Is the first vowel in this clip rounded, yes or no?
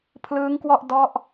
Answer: no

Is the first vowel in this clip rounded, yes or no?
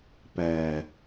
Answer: no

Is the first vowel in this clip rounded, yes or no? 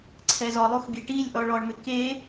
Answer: no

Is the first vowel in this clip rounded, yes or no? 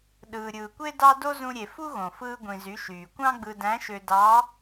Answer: no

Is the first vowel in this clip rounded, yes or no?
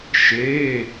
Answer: no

